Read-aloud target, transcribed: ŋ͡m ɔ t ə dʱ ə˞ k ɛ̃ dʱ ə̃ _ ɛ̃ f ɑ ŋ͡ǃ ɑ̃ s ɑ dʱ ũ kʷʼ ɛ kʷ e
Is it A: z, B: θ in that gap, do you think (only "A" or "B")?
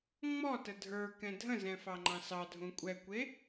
A